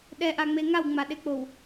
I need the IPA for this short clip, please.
ɗ ɛ ʔ a ŋ͡m e ŋ a w ŋ͡m a ɗ e k͡p o w

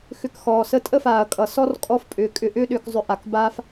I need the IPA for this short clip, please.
x ʏ˧ k x ɔː˨ s ə˦ tʼ ə˦ f aː˨ ɐ̯ kʼ ʌ˨ s ɔ˦ r kʼ ɔ˧ f pʼ ʏː˨ kʼ ʏ˧ ʔ ʏː˦ ɗ ʏː˧ k zˤ ʏ˧ ʔ a˨ k b aː˦ f

